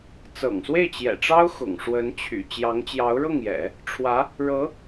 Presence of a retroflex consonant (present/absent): present